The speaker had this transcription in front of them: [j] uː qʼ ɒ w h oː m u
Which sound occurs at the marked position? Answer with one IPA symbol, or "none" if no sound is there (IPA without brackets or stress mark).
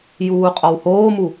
j